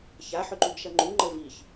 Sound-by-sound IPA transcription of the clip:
ç a ħ ʏ ǃ u ɡ ʃ ɐ ŋ͡ǃ u ŋ͡ǃ ə v i ç

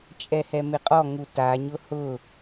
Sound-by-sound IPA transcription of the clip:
t͡ʃʼ ɛ h ɛ m ɪ qʼ ɔ ŋ u t a ɲ ʊ h ʊ

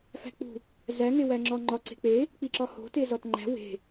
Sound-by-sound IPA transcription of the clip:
f æ̤ k͡p ṳ | z æ ŋ e w æ ŋ͡ǁ ɒ ŋ͡ǃ ɒ ǀ e̤ k͡p e | k͡p i ǁ ɒ h o̤ t e z ɒ t ŋ͡ǃ æ̤ w e̤

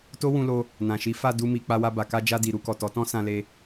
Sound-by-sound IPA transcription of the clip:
t o˦ w ũ˧ l o˧ | n ã˨ ʃ i˨˦ f a˦˨ d u˧ m i˨ k͡p a˧ w a˧ b a˨ k a˧ d͡ʒ a˧ d i˨ ɾ u˧ k ɔ˨ t ɔ˨˦ t ɔ̃˦ s ã˧ l e˧

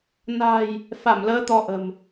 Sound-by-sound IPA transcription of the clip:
n a̤˨˩ j | f a˧˩ m l əː˨˦ t̪ ɔ˧ ʔ ə̤˨˩ m

